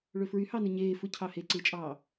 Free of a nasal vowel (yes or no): yes